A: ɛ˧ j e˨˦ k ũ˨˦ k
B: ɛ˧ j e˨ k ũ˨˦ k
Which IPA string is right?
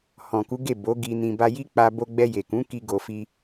B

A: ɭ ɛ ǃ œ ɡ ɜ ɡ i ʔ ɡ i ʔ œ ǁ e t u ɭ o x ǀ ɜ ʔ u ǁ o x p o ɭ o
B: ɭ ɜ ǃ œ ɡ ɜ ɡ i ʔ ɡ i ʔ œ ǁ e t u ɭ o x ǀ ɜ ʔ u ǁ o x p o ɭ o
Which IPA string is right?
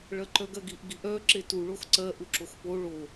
B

